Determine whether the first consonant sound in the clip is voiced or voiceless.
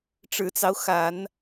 voiceless